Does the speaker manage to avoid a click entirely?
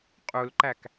no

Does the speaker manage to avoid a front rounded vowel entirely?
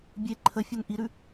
no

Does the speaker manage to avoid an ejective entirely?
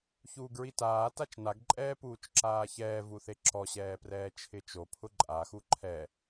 no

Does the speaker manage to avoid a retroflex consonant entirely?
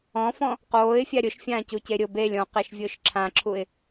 yes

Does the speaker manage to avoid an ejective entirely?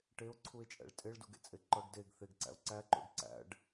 no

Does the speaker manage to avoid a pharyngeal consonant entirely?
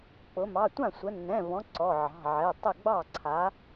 no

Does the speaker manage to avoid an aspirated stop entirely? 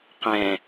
yes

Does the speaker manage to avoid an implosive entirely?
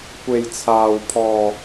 yes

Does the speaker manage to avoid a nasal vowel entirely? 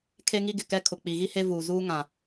no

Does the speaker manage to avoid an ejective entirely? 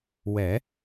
yes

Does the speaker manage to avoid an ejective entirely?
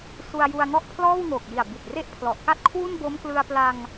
yes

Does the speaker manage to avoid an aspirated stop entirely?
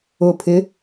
no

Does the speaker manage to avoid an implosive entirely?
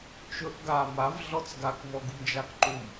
yes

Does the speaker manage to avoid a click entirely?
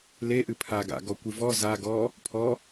yes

